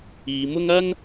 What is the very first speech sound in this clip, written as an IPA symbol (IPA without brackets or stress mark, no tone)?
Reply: iː